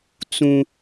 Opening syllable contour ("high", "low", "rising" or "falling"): high